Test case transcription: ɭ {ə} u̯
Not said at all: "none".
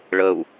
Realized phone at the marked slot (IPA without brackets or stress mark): ə